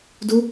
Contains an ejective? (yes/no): no